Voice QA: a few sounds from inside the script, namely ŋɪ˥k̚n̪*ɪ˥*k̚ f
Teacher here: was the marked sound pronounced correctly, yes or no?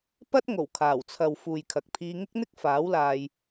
yes